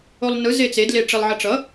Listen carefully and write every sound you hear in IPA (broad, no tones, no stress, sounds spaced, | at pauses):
o lˠ n ɯ z e t͡s e d l e ʈ͡ʂ e lˠ ʕ ʌ ʈ͡ʂ ʌ